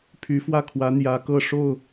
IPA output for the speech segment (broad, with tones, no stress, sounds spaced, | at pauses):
pʰ y˧˥ f w ä˥˩ kʰ w ä˧˥ n̪ j ä˧˥ k ɤ˥˧ ʂ o˥˩ ʊ̯